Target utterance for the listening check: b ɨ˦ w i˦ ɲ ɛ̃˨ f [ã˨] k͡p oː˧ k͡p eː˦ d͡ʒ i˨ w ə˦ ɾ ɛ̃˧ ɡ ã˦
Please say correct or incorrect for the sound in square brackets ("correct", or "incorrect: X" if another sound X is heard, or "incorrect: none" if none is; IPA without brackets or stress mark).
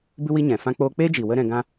incorrect: ã˦